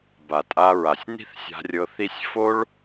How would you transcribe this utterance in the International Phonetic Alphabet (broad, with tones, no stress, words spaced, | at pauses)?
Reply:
ba˨tʼa˧ɹa˨sʲ ni̤˦θsʲa̤˧rʲɤ˧ θi˦sʲ fo˦ɭ